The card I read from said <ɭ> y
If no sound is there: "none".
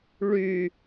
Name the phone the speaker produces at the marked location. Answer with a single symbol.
ɭ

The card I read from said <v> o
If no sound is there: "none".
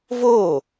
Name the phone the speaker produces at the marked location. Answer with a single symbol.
v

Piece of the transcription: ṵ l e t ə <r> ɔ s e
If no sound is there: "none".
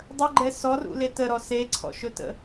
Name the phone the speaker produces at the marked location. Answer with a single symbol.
ɾ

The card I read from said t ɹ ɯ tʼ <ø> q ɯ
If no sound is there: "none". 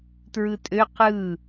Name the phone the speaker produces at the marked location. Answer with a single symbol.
ø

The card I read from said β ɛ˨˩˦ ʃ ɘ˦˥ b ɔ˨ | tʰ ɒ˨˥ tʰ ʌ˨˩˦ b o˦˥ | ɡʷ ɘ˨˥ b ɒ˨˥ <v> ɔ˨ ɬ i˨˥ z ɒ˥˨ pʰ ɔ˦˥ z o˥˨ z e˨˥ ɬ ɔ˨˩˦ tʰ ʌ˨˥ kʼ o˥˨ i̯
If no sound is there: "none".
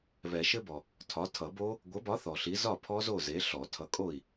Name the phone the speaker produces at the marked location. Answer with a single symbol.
θ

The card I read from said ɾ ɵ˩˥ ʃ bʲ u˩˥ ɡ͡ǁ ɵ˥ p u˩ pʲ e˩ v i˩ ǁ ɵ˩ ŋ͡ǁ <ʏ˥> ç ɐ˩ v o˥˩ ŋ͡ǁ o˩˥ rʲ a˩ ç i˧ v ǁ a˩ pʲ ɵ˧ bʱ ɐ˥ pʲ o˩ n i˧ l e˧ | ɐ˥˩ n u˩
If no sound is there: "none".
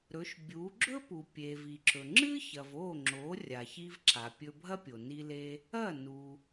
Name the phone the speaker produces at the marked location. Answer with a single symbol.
ɨ˥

